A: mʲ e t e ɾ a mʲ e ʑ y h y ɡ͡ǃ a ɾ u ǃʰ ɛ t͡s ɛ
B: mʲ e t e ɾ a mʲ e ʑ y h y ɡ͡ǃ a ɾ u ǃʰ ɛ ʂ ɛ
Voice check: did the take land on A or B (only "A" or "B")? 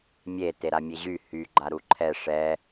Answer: B